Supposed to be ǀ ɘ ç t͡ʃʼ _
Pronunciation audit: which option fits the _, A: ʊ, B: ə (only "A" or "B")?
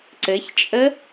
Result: B